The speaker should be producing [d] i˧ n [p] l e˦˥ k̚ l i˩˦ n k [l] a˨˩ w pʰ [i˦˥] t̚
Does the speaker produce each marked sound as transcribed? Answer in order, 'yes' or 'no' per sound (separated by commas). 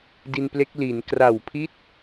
yes, yes, no, yes